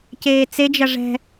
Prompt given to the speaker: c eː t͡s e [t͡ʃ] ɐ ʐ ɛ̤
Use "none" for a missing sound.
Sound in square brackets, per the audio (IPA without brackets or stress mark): d͡ʒ